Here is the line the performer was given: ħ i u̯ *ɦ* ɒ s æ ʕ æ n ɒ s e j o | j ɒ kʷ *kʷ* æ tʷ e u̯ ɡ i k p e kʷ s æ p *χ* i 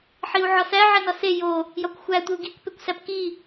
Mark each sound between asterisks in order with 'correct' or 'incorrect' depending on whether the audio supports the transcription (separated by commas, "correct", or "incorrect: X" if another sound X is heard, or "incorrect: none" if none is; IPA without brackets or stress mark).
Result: incorrect: ʕ, incorrect: xʷ, incorrect: k